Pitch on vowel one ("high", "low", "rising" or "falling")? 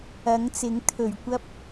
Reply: rising